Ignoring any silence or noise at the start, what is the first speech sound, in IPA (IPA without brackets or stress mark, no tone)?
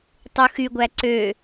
tˤ